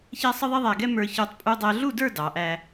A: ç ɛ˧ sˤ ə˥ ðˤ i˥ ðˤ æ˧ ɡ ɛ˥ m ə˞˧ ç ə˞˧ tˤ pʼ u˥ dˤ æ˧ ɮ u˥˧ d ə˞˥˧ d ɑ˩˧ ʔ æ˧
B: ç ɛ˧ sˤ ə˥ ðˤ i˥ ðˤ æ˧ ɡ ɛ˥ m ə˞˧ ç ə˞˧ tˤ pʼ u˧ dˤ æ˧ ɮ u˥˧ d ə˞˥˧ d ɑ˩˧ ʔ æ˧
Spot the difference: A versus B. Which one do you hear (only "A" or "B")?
B